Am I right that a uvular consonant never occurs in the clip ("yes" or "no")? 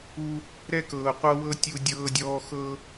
no